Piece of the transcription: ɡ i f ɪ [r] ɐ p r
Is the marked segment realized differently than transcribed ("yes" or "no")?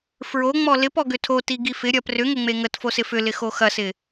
yes